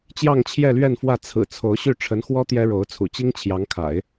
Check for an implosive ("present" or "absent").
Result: absent